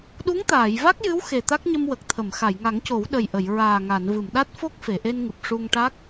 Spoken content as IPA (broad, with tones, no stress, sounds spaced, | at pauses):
ɗ u˧˥ ŋ t̪ aː˨˩˨ j v a˦˥ k̚ j ɨ˧˥ w x e˨˩ t̪ a˦˥ k̚ ɲ ə˧ m w ə˨˩ k̚ t̪ʰ ə˨˩˨ m x a˨˩˨ j ŋ a˨˩˦ ŋ c o˨˩˦ w ɗ ə˨˩ j ʔ ə˨˩˨ j ɹ aː˨˩ ŋ a˨˩˨ n v ɨ˨˩˨ m ɗ a˦˥ t̚ f o˦˥ k̚ f e˨˩˨ ʔ e˧ n ŋ ɨ˨˩ p̚ ʂ u˧ ŋ ʈ a˦˥ k̚